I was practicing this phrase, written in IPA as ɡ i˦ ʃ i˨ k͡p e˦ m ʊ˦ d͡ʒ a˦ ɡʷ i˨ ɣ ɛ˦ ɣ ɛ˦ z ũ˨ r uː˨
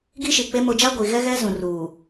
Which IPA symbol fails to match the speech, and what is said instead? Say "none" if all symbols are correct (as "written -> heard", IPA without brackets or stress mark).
none